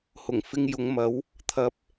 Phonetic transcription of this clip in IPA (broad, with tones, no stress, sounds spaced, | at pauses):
h ʊ˨˩ ŋ f ɪ˧ ŋ j ʊ˨˧ ŋ m ɐ˨˥ w | t̪ʰ ɐ˨˥ p̚